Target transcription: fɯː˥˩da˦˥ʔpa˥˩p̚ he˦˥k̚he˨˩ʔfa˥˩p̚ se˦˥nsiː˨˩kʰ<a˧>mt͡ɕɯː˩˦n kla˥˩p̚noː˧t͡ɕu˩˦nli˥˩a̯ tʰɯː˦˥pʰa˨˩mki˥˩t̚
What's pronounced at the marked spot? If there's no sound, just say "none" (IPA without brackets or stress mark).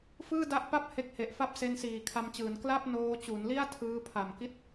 a˧